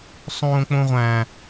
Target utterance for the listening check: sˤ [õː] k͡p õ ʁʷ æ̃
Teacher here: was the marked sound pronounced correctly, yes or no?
yes